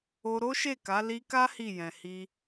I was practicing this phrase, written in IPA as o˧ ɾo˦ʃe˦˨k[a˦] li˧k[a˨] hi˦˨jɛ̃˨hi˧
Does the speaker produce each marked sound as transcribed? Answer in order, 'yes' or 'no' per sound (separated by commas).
no, no